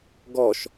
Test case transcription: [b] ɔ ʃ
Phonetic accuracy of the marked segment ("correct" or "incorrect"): incorrect